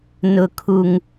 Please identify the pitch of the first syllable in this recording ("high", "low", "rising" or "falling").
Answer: high